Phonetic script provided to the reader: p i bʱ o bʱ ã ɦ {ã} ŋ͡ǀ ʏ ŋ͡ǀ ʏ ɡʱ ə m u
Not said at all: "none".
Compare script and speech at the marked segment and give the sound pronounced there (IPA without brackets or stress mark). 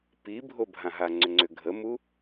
a